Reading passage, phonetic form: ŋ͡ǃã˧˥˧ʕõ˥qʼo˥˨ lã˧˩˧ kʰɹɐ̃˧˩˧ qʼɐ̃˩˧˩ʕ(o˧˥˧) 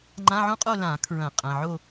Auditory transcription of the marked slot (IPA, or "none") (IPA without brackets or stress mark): o˥˨